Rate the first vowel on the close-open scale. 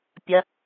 open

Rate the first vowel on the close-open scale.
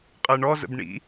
close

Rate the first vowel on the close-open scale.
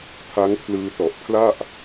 open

